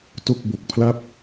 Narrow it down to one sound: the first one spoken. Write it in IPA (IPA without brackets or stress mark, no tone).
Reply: t